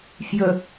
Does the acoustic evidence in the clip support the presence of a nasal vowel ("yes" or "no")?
no